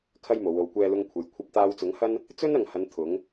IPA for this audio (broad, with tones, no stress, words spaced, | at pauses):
kʰɐ˥jmo˨˧w o˨wkʷɛː˧lʊ˧ŋkʷʰe˨j kʷʰɐ˧p̚t̪aː˧wt͡sʊ˨˥ŋhɐ˥n | t͡sɵ˥nɐ˨ŋhɐ˨˧n t̪ʰʊ˨˧ŋ